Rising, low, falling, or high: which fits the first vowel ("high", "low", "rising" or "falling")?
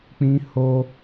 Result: high